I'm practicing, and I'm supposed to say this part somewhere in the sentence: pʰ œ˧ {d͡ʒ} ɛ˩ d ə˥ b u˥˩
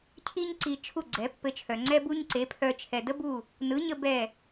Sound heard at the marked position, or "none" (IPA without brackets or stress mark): t͡ʃʰ